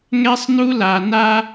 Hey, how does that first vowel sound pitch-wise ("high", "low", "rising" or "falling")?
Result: high